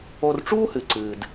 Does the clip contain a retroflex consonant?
yes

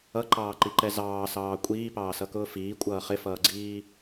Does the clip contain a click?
yes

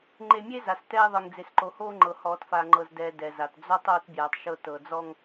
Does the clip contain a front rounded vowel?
no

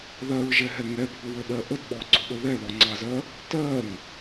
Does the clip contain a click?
yes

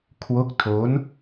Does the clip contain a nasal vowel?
no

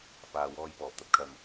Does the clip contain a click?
no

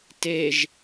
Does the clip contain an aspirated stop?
no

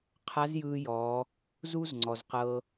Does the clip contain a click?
yes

